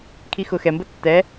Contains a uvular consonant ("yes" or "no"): no